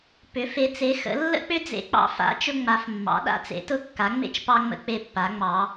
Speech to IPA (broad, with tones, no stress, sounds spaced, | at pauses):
p ʏ˧˥ f e˧˥ t͡s e˧˥ x ə̰˧˥ lː ə̰˥ k͡p ʏ˥ d͡z ḛ˧˥ k͡p ɑ̰˧˥ f a̰˧˥ t͡ʃ ʊ˥ ŋ͡m a˧˥ f mː ɑ̰˧˥ ɗ a̰˧˥ t͡s ḛ˧˥ t ʊ˥ kː a˧˥ ŋ͡m ḛ˥ t͡ʃ p ɑ˥ ŋ͡m ə̰˥ k͡p e˥ pː a˧˥ ŋ͡m ɑ˧˥